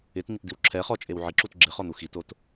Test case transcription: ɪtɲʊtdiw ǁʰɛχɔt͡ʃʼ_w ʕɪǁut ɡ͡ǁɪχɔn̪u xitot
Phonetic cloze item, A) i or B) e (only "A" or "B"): B